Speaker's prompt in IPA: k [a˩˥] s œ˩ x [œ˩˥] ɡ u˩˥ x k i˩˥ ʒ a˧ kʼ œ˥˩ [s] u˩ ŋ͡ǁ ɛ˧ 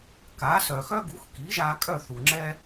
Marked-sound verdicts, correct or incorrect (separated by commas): correct, incorrect, incorrect